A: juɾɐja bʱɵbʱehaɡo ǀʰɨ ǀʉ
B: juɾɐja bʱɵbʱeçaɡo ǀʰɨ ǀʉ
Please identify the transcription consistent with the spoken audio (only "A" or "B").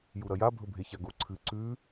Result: B